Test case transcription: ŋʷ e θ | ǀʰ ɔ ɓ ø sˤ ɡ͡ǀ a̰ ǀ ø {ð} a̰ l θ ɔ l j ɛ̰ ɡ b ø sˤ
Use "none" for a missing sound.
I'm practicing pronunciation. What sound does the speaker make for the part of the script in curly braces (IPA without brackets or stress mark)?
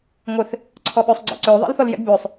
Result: ðˤ